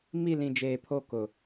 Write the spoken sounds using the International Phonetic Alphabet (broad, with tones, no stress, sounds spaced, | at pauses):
m i˦˨ l ĩ˨ d͡ʒ eː˨ pʰ o˦˨ k ʊ˨